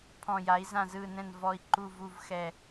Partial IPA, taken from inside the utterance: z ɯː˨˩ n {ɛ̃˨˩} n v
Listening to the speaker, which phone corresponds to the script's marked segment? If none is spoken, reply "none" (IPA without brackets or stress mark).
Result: ɛ̃˨˩